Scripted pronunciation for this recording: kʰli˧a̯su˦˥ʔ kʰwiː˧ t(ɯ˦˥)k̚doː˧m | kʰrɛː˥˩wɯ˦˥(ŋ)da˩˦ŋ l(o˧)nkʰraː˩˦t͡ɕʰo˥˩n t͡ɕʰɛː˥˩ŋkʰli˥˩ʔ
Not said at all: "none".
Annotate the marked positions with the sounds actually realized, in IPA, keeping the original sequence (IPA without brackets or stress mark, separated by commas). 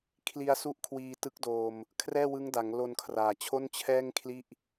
ɯ˦˥, ŋ, o˧